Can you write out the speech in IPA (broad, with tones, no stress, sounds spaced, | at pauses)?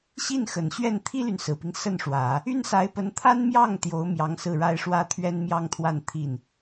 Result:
ɕ i˥˩ n x ə˨˩ n ɕ ɥ ɛ˥˩ n t̪ʰ i˥ l y˨ n s ɹ̩˨˩ p i˦ ŋ s ə˥˩ n ʂ w ä˨˩˦ | y˥ n s a˧˥ ɪ̯ p ə˧˥ n t̪ʰ a˥ n m j ɑ˥˩ ŋ t̪ j o˧˥ ʊ̯ m j ɑ˧˥ ŋ s ɹ̩˥˩ ɻ a˥ ɪ̯ ʂ w ä˥ t̪ʰ ɥ ɛ˥ n m j ɑ˥ ŋ t̪ʰ w a˥˧ n t̪ʰ i˥˩ n